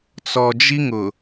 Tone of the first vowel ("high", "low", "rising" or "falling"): low